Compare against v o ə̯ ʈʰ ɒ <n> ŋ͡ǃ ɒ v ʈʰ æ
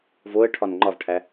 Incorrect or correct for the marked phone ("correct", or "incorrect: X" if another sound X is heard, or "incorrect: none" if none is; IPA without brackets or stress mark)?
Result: correct